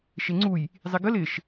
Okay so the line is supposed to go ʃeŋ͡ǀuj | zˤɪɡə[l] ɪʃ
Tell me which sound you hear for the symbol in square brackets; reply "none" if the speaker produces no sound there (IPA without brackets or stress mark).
l